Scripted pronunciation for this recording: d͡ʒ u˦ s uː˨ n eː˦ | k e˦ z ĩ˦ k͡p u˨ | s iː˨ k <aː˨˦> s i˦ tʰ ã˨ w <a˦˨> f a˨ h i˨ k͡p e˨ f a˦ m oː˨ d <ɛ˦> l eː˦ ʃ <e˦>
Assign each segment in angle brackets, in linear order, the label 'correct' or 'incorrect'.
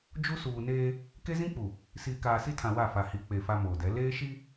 incorrect, correct, incorrect, incorrect

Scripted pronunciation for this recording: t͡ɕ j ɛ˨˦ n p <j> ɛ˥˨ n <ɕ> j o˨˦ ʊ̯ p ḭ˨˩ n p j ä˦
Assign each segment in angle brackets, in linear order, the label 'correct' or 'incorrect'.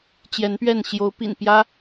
incorrect, correct

